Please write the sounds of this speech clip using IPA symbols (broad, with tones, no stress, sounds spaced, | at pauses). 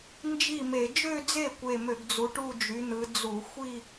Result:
n d͡ʒ i˥˩ m e˧˩˧ d͡ʒ ø˥˧ d͡z e˥˩ kʷ e˧˩ m ø˧˩˧ ɡ d͡z u˨˦ ʈ u˥˧ d͡ʒ y˨˦ n̪ ɯ˨˦ d͡z u˧˩˧ xʷ i˥˧